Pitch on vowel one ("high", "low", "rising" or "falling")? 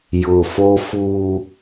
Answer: low